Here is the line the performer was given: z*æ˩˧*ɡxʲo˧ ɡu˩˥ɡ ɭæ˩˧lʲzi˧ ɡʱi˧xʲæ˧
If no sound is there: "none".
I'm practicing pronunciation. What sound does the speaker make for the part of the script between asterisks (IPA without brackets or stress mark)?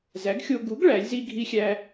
æ˩˥